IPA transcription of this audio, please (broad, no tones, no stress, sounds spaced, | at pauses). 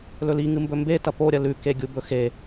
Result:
l ɵ l i ŋ ɨ m b ɵ m b e t ɐ p o ɾʲ ɐ l ʉ k e ɡʲ u b ɵ x e